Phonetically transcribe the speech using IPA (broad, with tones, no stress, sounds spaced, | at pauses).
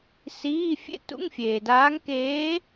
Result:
s iː˧˥˧ fʲ ḛ˥ t ṵ˧˥˧ ŋ fʲ eː˨ d aː˧˥ ŋ k eː˧˥